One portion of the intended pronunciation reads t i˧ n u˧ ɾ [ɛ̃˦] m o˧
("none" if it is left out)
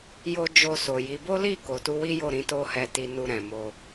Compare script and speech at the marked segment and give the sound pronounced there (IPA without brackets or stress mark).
ɛ̃˨